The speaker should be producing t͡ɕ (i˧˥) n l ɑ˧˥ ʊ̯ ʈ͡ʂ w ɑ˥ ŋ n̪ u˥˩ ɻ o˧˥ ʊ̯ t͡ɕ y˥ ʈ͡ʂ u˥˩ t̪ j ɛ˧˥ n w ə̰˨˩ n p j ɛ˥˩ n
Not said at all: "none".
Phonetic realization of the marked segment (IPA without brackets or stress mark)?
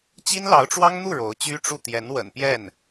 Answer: i˥